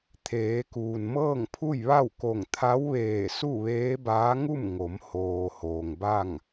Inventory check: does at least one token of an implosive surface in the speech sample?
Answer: no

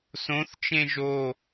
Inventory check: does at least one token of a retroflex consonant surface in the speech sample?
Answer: no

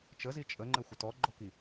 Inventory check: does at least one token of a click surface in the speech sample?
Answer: yes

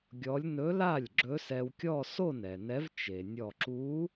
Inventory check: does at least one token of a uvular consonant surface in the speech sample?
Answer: no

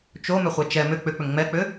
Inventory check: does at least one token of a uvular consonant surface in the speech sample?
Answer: yes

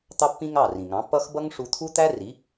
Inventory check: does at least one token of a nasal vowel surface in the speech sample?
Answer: yes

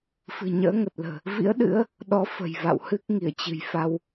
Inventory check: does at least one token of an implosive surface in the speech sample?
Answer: yes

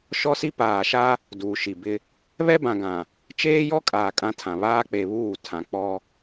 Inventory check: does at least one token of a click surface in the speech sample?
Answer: no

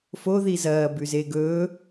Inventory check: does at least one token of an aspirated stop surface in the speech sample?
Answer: no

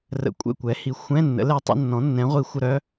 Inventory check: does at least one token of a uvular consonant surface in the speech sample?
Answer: yes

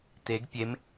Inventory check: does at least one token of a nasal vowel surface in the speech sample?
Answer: no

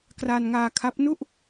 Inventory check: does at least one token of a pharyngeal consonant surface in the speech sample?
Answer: no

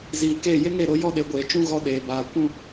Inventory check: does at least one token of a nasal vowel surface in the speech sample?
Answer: yes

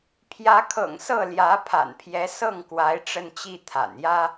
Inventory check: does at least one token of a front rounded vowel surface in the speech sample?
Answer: no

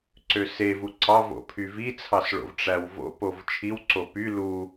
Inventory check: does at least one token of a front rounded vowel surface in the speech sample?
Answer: yes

